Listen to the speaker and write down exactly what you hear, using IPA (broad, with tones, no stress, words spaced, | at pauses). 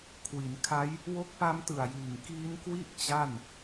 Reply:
kʰwi˩˦nkʰa˦˥j | wo˦˥k̚pa˦˥mtɯ˨˩a̯jiː˨˩ŋ kiː˦˥nkwi˥˩ʔ t͡ɕa˥˩n